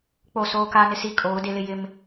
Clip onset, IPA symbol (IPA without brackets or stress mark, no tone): k͡p